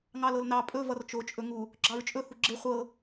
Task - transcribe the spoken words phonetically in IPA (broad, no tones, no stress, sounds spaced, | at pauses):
ŋ ɑ l ɤ l n ɑ pʼ ɵ v ʌ r t͡ʃ o t͡ʃʼ ɵ ŋ u | ɡ͡ǁ ɑ ɹ t͡ʃʼ ɵ h u ɡ͡ǁ e χʷ ɤ